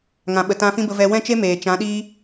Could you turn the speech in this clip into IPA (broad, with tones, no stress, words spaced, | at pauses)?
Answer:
ŋã˨ɓə˨tã˧ fĩ˦bə˧ vɛ˧ wɛ̃˦t͡ʃe˦ meː˨t͡ʃã˨˦ɗiː˦